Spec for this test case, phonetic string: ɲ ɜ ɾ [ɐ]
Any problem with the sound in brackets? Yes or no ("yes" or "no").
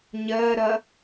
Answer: no